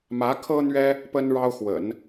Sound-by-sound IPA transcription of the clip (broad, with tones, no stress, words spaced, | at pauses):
mä˧˥kʰɤ˥n̪ɥɛ˥ | pə˥nɻɑ˥ʊ̯ xwə̰˨˩˦n